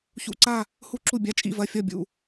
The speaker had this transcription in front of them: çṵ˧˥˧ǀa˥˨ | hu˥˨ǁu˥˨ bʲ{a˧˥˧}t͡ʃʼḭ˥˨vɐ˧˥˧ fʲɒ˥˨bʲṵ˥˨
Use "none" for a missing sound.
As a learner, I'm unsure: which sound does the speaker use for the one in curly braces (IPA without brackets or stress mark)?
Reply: a˧˥˧